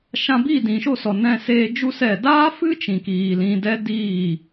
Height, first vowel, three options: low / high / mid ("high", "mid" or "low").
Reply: low